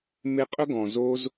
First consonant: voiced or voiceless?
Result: voiced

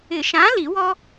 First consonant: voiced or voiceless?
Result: voiceless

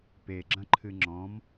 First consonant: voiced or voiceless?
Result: voiceless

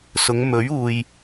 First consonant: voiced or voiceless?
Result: voiceless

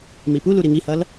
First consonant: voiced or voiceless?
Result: voiced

